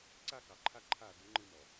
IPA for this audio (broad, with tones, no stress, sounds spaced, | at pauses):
ǀ a˦ k ɑ˨ ǃʰ a˦ ǃʰ a˦˨ d ə˨˦ ŋ͡ǃ ɨ˦ m ɔ˨